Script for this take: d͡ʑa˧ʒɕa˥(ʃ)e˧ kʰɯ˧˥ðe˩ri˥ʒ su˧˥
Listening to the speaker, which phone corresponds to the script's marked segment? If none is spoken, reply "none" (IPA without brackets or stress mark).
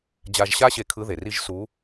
ɕ